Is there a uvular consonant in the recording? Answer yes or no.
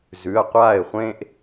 yes